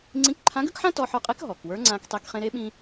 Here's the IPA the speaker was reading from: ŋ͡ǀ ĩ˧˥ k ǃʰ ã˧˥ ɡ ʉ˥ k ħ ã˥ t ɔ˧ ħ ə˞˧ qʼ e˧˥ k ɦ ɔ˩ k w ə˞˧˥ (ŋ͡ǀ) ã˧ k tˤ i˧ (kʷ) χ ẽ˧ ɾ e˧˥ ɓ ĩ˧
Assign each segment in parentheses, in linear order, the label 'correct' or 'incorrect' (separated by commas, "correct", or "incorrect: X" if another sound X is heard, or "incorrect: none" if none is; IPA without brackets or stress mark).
correct, incorrect: k